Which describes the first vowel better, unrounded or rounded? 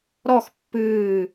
rounded